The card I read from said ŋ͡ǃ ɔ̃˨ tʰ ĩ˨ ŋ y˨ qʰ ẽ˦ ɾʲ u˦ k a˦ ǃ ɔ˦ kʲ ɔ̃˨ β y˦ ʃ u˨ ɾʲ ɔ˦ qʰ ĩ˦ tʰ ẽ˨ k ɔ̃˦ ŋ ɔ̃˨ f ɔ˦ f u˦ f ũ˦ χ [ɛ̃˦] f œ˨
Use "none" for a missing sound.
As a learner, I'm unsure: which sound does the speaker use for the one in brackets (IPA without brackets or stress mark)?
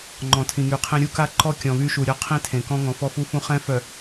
ɛ̃˦